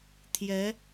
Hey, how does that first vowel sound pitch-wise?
rising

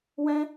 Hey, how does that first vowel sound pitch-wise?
high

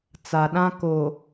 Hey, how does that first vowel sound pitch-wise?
low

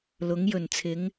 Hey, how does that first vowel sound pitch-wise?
rising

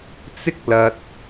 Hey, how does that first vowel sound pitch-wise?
high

